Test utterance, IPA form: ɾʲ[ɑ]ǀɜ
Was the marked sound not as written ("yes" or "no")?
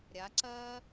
yes